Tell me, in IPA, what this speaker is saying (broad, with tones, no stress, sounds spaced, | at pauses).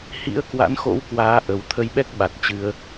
h ḭ˧˥ ə̯ k w a̰˧˥ n x o̰˧˥ w k w aː˨˦ ʔ ə˨˩ w t̪ʰ ə˧ j ɓ ɛ˦˥ k̚ ɓ a˨˩ t̚ t͡ɕ ɨ˧ ə̯